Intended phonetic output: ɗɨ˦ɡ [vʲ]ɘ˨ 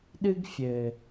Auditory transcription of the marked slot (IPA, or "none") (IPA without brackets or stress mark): fʲ